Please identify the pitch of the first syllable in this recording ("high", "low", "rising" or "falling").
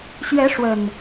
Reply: rising